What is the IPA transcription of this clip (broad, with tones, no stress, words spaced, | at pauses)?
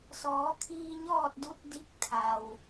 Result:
sɔː˩˧ kʰiː˧ɲɔː˥˨t̚ du˧˥t̚di˧˥k̚ t̪ʰa˩w